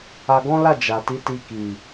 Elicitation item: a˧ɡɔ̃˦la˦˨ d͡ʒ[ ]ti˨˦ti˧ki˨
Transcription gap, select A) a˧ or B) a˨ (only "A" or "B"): B